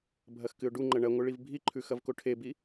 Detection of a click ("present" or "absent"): present